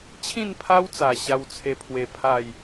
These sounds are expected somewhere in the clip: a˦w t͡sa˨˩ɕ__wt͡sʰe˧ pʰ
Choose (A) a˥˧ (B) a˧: B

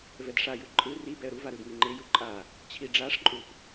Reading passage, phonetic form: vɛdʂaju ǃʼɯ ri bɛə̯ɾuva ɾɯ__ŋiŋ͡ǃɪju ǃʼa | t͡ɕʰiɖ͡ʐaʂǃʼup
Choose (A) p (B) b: B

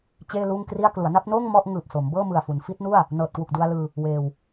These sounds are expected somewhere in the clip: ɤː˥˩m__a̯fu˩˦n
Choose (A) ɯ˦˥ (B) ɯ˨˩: B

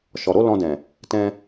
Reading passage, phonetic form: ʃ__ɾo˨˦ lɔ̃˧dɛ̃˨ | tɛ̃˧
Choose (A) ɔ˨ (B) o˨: A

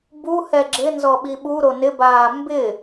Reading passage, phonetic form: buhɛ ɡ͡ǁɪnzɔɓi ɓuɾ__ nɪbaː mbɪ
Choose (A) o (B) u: A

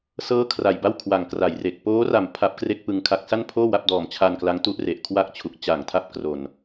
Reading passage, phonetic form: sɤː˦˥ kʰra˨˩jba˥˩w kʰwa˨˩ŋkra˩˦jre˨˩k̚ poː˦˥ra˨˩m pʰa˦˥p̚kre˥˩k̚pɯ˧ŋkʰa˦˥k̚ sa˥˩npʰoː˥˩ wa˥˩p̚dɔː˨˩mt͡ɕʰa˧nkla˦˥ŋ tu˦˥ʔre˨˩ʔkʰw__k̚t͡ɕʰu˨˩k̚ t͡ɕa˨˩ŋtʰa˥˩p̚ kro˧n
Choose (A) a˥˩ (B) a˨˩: A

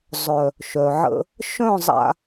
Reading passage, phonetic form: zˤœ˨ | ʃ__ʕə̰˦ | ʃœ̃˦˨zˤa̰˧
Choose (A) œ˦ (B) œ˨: B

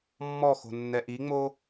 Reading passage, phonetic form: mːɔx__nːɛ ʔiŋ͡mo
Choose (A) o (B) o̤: B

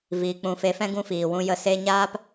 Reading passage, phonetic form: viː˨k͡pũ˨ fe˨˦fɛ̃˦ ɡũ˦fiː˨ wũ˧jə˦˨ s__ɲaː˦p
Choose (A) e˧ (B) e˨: A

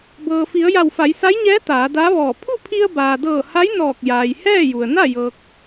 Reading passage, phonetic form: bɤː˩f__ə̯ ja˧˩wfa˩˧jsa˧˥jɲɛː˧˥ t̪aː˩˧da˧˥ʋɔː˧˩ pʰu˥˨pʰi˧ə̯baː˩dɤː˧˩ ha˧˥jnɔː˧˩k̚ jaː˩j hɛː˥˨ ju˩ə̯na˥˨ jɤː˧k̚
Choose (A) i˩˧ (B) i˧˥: A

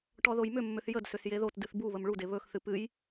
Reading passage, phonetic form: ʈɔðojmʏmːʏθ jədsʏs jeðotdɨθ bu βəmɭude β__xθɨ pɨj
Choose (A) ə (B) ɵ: B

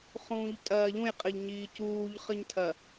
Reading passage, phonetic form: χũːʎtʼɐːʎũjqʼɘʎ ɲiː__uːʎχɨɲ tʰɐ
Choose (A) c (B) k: A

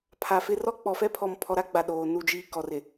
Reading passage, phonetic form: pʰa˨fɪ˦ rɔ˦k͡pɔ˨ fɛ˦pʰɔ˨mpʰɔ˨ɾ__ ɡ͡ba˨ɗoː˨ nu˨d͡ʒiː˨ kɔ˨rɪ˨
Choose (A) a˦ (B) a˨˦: A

